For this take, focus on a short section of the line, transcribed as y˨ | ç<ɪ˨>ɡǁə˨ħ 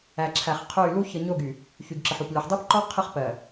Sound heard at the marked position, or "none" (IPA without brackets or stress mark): y˨